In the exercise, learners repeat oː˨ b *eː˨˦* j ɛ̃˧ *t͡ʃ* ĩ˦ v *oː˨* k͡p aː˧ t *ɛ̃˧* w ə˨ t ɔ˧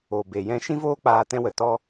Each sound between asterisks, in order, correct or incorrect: incorrect: eː˨, incorrect: ʃ, incorrect: oː˦, correct

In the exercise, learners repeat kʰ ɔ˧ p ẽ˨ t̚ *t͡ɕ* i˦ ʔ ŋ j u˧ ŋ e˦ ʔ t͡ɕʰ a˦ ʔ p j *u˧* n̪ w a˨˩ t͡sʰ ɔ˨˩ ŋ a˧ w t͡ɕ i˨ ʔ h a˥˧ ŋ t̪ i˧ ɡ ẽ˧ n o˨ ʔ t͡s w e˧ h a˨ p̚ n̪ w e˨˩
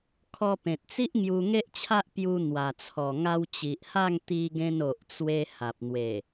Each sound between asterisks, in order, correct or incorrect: incorrect: t͡s, correct

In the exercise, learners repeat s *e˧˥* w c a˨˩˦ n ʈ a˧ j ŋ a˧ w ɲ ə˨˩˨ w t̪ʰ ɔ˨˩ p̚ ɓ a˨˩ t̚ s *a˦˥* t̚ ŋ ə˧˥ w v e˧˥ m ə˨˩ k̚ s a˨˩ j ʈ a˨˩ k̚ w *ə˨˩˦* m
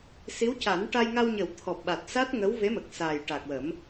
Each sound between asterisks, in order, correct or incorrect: incorrect: i˧˥, correct, correct

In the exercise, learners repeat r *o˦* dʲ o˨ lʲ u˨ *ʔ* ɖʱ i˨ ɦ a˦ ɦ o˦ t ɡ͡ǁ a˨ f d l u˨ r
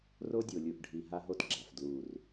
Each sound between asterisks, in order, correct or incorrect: correct, correct

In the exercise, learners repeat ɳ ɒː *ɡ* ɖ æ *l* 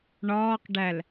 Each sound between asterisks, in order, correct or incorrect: incorrect: q, correct

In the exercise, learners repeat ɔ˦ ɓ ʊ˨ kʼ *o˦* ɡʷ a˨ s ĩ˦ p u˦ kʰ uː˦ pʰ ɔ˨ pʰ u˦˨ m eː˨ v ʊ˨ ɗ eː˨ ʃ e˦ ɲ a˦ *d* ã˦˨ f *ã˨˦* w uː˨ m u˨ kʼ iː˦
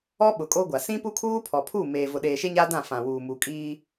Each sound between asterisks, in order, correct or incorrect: correct, correct, incorrect: ã˨

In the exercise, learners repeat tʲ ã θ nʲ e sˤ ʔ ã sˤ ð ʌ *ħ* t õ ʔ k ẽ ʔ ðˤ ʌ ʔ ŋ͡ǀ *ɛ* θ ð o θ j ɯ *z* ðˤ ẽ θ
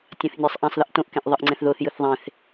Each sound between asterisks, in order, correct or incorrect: incorrect: ʔ, incorrect: ɛ̃, incorrect: θ

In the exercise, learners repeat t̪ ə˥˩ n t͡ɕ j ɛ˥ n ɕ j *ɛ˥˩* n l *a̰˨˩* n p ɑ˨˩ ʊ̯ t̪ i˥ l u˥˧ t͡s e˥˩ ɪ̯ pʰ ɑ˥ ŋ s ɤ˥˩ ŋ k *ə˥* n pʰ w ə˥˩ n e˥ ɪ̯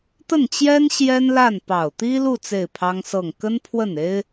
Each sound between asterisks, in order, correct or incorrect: incorrect: ɛ˥, incorrect: a˥˩, correct

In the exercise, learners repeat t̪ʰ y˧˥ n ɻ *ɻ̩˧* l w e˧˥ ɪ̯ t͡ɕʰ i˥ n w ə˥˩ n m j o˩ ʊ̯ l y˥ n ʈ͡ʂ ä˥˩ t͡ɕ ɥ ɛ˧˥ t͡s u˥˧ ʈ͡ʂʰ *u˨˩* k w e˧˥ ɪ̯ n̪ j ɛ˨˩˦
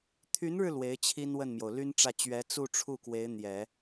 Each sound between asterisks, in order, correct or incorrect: correct, incorrect: u˥˩

